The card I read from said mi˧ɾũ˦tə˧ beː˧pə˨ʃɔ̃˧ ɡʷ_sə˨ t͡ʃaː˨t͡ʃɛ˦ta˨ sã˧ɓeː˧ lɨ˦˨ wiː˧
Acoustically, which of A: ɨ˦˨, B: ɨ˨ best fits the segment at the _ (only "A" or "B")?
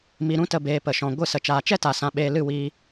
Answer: A